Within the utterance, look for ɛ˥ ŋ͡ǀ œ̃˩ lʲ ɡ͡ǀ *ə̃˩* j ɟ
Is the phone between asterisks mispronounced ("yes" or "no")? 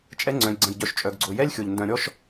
no